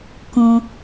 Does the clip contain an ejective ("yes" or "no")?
no